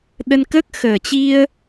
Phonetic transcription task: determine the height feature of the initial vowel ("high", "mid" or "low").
mid